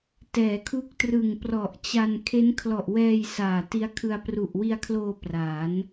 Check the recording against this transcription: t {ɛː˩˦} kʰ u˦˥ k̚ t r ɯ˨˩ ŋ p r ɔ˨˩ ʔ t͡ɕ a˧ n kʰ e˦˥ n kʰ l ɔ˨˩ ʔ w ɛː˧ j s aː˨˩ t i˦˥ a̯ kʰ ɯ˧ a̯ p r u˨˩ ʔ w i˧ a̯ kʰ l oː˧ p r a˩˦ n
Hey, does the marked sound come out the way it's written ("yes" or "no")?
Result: yes